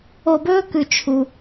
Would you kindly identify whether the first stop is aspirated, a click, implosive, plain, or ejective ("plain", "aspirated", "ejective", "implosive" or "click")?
plain